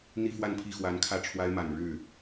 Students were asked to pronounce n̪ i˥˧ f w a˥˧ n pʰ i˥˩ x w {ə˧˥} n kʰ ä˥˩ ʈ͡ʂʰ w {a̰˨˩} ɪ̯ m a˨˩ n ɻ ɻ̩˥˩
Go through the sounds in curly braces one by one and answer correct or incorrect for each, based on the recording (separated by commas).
incorrect, incorrect